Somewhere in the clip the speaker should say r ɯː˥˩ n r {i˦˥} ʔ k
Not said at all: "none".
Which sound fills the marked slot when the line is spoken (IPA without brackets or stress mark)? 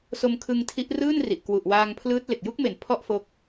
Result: i˨˩